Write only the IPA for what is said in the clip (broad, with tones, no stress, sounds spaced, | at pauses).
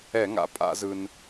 ɛ˧˩˧ ŋ a̰˩˧ pʼ a̰˧˩˧ z ɯ˩ n